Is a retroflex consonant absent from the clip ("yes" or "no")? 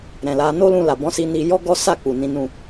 yes